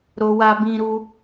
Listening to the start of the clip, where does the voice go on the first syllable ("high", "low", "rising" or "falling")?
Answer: high